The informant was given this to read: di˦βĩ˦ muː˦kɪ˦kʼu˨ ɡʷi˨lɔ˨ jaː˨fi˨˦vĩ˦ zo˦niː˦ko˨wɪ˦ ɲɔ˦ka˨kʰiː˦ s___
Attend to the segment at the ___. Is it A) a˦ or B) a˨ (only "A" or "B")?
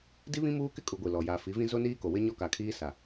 B